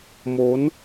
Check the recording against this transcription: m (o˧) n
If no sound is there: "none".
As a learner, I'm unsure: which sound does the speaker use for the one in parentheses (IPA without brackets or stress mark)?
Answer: o˦˥